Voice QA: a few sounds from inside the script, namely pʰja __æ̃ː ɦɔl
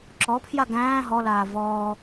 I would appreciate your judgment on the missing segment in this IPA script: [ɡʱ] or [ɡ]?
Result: ɡ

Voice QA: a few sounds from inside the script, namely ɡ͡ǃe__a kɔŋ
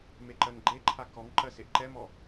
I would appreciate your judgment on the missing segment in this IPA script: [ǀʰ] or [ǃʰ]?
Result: ǃʰ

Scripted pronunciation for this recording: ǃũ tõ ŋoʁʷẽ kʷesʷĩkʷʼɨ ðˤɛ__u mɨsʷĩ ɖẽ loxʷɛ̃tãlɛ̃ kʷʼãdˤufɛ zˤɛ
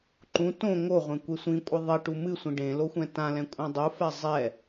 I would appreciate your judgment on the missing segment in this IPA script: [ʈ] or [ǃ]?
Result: ʈ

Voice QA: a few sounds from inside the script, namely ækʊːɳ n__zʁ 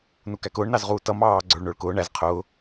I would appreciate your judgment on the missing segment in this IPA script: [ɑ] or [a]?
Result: ɑ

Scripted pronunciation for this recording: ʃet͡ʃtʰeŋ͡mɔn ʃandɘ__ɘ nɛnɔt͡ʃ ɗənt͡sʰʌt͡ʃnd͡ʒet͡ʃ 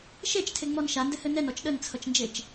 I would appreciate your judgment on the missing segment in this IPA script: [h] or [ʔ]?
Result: h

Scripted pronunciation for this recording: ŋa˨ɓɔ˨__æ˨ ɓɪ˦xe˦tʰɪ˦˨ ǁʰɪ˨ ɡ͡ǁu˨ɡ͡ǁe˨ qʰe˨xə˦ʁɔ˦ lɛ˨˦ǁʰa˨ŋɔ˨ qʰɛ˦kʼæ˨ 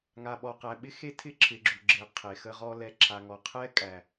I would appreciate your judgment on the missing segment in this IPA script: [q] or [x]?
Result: q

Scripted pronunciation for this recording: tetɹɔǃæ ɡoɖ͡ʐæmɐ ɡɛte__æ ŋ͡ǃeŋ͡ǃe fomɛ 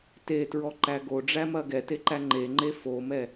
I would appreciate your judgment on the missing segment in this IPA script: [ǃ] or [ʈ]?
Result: ǃ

